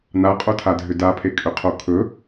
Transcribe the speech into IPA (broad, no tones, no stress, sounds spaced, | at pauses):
n a qʼ o tʰ a dʱ ʏ d a pʰ e kʼ ʏ qʰ o kʰ ɵ